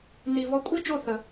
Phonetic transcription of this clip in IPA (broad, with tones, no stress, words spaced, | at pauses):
ni˧ βɔ˧kʷʼi˦t͡ʃo˦˨ θə˧